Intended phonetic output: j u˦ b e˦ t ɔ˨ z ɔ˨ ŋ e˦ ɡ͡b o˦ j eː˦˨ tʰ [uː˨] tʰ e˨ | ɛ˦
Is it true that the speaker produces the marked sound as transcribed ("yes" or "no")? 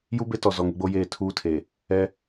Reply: no